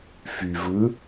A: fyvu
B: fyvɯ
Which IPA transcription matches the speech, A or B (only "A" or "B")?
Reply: B